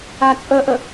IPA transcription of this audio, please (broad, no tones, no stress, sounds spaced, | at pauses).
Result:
a t͡sʼ ə ʔ ə